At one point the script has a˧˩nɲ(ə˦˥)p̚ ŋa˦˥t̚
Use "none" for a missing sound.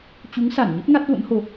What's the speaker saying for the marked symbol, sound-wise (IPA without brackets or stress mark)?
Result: ə˦˥